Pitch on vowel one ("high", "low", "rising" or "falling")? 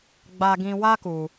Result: high